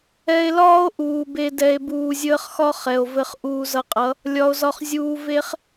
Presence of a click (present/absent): absent